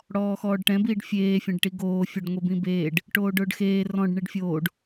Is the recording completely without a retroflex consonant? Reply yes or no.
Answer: no